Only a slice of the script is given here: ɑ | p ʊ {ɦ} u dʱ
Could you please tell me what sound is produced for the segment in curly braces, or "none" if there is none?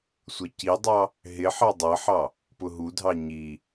ɦ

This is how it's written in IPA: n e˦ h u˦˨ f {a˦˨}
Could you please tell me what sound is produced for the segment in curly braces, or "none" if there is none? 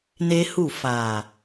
a˨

